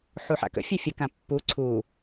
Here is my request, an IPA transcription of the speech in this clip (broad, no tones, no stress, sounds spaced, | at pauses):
ħ u ħ a̰ k ə̰ fʲ œ fʲ ə k ã pː u ǀʰ u